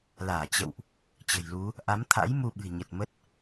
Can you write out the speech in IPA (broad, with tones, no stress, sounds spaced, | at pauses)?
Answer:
l aː˧˩ t͡ɕ ə̰˧˨ w ʔ | t͡ɕ ə̤˨˩ j l u˨˦ | ʔ a˨˦ m t̪ʰ a̰˧˥ j m u˧ ɓ ɨ̤˨˩ ɲ ə˨˩ t̚ m ə˦˥ t̚